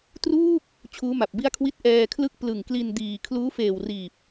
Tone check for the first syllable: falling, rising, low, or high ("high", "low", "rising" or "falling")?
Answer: falling